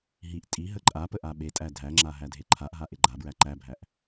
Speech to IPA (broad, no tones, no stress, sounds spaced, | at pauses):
ɦ i ʔ tʼ i ɦ ə ǃʼ a p ə ʔ a ɓ e tʼ æ dʱ æ ŋ͡ǁ a ɦ æ dʱ e ǃʰ a ʔ ɦ a ʔ e ɡ͡ǃ a b ɹ æ ǃ æ bʱ æ ʔ